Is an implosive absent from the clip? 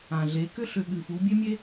no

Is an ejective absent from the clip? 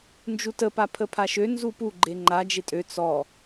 no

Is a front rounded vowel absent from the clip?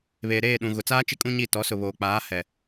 yes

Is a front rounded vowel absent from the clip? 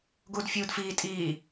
yes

